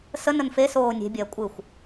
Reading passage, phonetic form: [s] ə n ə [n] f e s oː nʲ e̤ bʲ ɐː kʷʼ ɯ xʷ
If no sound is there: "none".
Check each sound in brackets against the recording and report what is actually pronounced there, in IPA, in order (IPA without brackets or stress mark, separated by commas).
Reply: s, n